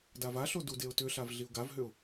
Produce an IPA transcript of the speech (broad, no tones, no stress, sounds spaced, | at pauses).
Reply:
d a v a ɬ o d u d e ʊ̯ t ʏ ɬ a v ɮ i ʊ̯ ɡ a v ɦ ʏ ʊ̯